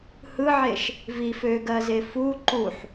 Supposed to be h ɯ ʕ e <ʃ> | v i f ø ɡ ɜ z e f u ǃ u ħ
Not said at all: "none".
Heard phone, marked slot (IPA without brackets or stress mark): ʃ